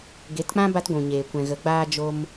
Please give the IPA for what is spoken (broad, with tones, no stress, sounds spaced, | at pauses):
ɡ e˨˦ t k͡p ã˦ b a˦ t ɡʷ ũ˨ ɲ eː˨ kʷ ɛ̃˨ ɣ ə˨˦ ɡ͡b aː˦ d͡ʒ o˧ m